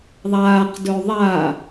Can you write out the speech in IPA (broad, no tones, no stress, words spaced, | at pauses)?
ðˤaːqdɵ ðˤa